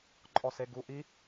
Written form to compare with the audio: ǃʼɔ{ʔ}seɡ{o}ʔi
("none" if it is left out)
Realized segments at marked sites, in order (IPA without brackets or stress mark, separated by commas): none, u